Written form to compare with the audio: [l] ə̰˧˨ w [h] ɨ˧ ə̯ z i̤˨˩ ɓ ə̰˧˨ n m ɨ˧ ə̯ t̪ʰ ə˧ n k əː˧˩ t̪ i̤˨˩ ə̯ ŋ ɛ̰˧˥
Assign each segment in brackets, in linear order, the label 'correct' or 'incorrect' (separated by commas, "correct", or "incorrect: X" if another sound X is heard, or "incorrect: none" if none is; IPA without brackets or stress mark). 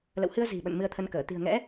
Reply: correct, correct